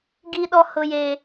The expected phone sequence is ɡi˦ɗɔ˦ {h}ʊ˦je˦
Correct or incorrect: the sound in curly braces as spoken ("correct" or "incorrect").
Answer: correct